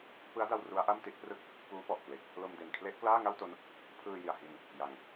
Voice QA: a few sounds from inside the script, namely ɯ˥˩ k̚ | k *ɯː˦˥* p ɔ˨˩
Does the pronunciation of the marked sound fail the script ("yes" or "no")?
yes